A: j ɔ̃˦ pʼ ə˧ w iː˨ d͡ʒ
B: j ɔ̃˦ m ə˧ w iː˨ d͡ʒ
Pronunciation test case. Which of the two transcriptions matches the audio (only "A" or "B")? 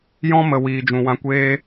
B